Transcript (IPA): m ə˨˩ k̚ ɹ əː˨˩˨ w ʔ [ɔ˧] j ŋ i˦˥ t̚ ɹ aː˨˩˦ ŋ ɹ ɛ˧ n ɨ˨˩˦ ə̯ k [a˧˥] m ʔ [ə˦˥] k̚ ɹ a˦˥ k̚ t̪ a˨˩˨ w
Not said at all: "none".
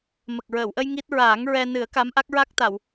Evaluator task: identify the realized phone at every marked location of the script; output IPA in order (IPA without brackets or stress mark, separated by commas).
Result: ə˧, a˧˥, a˦˥